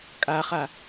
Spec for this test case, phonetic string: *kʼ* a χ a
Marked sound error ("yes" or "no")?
no